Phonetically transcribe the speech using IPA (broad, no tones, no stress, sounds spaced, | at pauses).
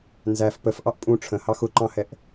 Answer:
n z æ f p ə f ʔ ɑ ʔ pʼ ũ ʈ͡ʂʰ ə̃ h ɑ x ʊ ǃ ɑ̃ h ɛ ʔ